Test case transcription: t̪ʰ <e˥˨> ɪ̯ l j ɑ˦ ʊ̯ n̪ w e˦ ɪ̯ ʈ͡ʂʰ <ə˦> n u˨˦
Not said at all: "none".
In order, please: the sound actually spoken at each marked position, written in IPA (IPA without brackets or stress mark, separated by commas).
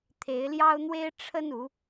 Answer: e˨˦, ə˦